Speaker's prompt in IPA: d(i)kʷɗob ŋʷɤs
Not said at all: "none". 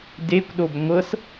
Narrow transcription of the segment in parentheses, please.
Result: e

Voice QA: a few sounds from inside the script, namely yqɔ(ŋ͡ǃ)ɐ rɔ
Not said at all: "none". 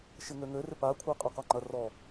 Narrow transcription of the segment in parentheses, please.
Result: ŋ͡ǃ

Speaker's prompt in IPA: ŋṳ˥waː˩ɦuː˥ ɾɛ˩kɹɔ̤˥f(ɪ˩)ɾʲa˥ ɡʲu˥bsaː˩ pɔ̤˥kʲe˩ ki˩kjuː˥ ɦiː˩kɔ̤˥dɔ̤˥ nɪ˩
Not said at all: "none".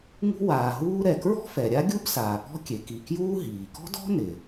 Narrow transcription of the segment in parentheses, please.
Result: ɛ˩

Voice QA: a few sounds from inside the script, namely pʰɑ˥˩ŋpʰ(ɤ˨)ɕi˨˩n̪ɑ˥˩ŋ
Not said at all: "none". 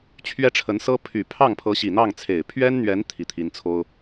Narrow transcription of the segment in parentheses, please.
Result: ɤ˧˥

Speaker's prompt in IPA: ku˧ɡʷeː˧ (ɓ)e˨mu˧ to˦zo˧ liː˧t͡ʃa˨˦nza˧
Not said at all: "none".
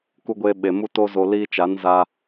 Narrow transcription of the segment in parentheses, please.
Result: ɓ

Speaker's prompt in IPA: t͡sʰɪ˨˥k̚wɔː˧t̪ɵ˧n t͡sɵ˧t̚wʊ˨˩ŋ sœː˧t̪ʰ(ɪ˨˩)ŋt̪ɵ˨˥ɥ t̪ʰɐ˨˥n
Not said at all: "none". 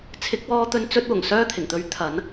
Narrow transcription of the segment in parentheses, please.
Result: ɪ˨˩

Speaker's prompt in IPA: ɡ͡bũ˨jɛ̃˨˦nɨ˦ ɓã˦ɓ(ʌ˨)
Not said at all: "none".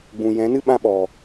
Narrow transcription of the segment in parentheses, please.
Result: ɔ˨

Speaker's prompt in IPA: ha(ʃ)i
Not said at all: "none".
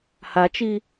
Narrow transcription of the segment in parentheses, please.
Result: t͡ʃ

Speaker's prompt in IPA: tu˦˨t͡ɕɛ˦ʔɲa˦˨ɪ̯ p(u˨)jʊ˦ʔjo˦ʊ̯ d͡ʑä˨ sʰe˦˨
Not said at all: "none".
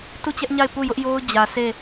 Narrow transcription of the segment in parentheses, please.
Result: u˦˨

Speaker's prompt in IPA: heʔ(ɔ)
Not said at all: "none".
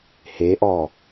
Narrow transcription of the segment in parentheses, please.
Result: ɔ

